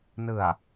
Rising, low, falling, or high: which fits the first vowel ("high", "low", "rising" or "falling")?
low